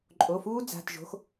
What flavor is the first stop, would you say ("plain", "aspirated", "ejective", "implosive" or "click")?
click